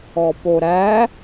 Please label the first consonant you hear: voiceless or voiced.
voiceless